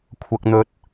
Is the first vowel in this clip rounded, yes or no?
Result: no